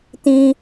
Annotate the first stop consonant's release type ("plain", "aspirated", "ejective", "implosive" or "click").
plain